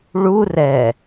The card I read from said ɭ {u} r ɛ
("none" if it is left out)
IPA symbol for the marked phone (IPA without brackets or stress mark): u